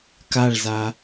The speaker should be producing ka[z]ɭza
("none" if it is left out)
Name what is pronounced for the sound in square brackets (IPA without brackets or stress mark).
none